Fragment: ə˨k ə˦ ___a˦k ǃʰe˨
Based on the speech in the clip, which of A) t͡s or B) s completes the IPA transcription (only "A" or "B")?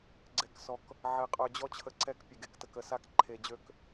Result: B